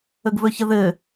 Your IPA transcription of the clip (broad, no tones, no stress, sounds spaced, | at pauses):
ə ɡ v ɵ ç ə ð ɘ